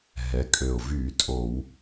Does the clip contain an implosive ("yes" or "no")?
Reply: no